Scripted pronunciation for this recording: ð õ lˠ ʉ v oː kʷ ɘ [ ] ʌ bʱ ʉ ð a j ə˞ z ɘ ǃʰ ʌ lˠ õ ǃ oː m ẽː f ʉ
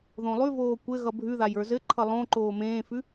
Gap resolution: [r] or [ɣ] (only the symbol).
ɣ